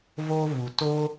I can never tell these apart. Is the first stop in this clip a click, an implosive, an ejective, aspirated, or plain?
plain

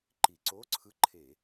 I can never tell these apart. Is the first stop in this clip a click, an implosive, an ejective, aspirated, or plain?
click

